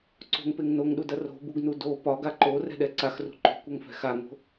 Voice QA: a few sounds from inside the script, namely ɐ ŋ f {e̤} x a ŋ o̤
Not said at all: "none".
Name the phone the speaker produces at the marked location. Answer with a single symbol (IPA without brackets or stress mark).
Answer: ɛ̤